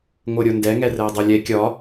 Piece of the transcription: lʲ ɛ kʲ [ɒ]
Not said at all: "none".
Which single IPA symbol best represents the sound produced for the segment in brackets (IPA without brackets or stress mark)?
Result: ɒ